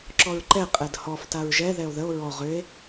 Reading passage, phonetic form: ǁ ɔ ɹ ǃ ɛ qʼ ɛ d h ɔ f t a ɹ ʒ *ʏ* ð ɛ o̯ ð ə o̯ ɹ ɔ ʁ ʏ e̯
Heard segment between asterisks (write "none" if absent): ɛ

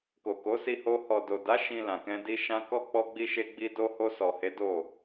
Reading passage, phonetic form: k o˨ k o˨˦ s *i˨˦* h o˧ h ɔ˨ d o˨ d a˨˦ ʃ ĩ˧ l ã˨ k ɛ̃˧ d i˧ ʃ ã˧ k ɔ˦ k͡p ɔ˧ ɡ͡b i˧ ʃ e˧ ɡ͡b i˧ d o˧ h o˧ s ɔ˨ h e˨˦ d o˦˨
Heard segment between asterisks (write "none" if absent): i˧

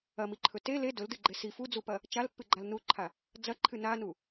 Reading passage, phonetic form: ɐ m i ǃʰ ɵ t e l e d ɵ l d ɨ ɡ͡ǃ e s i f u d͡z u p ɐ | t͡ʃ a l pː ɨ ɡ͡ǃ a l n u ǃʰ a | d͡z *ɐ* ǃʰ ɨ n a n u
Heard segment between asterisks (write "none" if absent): ɐ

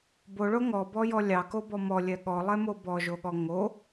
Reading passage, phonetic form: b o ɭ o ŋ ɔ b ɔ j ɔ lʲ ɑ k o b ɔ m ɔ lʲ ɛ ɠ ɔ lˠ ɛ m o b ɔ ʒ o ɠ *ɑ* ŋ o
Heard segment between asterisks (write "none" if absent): ɔ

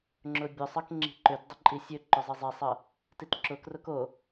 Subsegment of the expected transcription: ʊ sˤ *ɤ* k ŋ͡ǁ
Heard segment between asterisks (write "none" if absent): ɤ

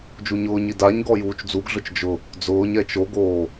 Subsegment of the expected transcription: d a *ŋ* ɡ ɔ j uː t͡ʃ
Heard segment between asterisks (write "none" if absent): ɲ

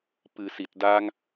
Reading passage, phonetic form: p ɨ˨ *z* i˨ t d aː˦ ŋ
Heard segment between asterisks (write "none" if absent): s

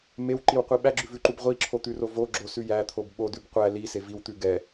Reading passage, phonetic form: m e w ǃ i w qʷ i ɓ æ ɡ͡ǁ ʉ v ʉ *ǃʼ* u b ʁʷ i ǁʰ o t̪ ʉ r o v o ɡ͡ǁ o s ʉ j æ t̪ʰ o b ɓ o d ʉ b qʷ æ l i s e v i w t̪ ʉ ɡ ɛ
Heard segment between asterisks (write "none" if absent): ǃ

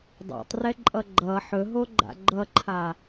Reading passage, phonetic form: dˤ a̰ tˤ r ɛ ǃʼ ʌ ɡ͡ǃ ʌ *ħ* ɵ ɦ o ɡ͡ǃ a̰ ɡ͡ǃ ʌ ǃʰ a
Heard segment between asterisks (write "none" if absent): ħ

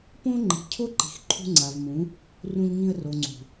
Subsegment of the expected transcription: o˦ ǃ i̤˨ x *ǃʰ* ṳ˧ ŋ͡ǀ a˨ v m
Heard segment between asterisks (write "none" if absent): ǃʰ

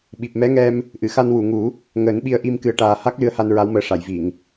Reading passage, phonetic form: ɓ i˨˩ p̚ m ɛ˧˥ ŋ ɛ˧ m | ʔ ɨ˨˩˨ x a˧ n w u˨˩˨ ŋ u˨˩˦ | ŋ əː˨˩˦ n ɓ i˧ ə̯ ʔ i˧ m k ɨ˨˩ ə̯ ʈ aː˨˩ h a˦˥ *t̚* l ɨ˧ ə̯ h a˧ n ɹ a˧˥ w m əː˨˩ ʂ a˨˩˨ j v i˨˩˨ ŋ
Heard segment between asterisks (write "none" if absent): k̚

